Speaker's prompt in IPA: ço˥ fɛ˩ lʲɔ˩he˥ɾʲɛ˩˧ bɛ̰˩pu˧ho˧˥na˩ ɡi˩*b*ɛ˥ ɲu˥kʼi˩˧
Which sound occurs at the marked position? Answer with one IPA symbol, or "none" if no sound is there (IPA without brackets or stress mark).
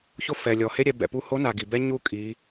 b